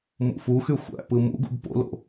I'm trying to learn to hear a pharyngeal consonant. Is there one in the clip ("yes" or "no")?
no